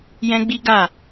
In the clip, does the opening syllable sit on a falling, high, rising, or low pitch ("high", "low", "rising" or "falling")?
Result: high